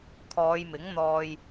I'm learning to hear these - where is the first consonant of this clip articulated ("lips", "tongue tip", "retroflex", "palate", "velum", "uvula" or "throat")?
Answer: velum